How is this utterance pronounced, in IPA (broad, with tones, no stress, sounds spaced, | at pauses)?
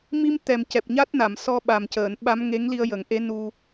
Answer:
m i˧ m t̪ ɛ˨˩ m c ɛ˨˩ p̚ ɲ a˦˥ t̚ n a˨˩˨ m s ɔ˧ ɓ a˨˩ m c əː˨˩˨ n ɓ a˧˥ m ŋ e˧˥ ŋ l i˧ ə̯ j ə˨˩˦ ŋ ʔ e˧˥ n u˧